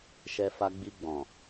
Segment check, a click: absent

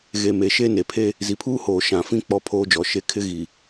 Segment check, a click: absent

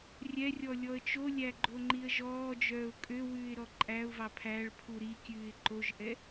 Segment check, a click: present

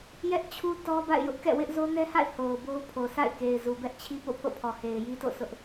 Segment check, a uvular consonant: absent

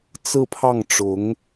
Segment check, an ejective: absent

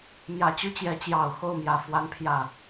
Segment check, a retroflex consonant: absent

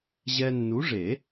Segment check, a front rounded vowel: absent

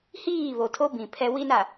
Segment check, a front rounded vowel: absent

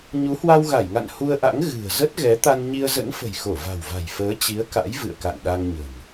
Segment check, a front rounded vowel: absent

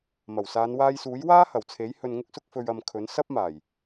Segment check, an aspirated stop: present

